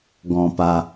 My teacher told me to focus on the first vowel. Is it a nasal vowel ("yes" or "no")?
yes